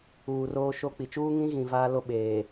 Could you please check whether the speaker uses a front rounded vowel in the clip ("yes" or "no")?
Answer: no